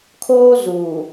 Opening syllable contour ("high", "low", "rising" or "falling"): high